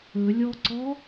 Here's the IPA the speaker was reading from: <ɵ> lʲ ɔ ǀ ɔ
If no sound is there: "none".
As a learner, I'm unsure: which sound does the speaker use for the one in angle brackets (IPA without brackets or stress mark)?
ɵ